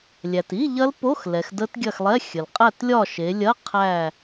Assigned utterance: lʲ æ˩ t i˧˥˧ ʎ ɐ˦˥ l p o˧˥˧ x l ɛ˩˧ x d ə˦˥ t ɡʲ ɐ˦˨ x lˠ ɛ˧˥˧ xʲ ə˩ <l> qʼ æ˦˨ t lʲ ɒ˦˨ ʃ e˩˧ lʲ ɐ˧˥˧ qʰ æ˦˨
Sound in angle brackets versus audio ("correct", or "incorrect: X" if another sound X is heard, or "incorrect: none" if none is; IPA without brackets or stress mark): correct